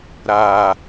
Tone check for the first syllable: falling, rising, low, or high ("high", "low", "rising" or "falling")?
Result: low